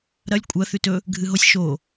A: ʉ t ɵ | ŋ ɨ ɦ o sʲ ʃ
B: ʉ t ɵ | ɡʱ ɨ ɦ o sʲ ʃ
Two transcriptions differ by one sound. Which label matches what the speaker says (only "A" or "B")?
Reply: B